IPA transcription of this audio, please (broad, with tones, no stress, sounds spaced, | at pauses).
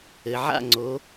ɘ˩ ʕ a̰˦˨ ŋ͡ǀ o˩˧